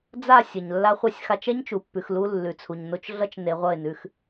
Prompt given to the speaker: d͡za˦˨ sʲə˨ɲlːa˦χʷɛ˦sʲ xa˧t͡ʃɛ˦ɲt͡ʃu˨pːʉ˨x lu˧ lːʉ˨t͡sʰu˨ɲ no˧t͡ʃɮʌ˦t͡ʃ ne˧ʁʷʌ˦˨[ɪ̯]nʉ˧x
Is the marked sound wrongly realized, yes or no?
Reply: no